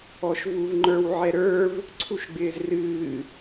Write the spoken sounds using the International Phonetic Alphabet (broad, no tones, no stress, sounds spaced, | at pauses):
ɔ ʃ v u v ŋ͡ǃ ə˞ w ʕ ɛ ɾ ə˞ v | ǀʰ u ʃ ɡ͡b ɪː z r ɨː